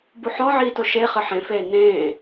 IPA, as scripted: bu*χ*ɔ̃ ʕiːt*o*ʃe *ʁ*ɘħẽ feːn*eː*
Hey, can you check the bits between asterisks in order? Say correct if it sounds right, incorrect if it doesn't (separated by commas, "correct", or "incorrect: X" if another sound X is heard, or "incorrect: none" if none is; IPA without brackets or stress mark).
incorrect: ħ, correct, incorrect: χ, incorrect: ẽː